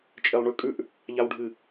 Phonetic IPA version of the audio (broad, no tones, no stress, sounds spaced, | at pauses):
t͡ʃʼ e lˠ ɳ ʉ kʼ ʉ ʔ | ʎ a w ɖʱ ɨ